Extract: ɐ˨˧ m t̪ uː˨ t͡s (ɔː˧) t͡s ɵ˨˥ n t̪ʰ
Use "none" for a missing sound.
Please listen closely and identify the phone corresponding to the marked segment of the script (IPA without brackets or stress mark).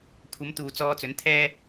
ɔː˧